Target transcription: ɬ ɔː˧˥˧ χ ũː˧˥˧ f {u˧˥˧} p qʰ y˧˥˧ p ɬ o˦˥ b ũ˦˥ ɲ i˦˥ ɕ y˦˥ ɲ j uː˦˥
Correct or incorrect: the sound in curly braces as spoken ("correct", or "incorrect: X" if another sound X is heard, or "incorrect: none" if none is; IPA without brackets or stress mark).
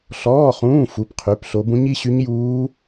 correct